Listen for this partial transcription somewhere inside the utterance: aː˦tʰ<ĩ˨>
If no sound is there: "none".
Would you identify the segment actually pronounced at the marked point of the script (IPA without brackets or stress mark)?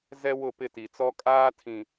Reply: ĩ˨